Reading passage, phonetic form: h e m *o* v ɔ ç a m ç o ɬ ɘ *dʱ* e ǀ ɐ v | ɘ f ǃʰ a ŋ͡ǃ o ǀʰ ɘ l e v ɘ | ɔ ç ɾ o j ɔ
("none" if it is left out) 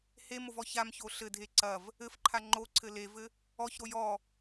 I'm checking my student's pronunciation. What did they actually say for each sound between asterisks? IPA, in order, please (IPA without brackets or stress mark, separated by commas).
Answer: o, dʱ